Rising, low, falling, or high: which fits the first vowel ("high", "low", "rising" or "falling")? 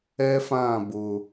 high